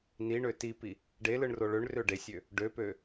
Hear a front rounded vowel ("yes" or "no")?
yes